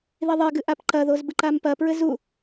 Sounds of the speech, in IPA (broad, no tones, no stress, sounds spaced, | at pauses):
ð i ðˤ e ɡ ɨ ʔ a p ǃ ɐ ð o z b ɨ ǃ a m p ɐ p ɹ ɘ z u